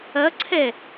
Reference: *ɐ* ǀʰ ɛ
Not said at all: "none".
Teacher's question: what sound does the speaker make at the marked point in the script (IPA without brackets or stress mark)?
ɐ